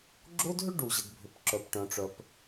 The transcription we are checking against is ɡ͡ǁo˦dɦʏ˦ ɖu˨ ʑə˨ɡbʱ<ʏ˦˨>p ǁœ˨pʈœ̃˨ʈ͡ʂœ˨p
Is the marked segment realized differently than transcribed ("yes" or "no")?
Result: yes